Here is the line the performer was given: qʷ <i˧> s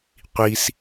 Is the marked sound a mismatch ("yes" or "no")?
no